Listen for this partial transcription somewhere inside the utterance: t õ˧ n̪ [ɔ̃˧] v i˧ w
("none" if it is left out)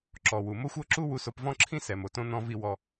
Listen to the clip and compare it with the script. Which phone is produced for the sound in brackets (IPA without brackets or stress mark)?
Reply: ɔ̃˧